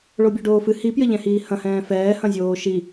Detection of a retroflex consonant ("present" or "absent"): present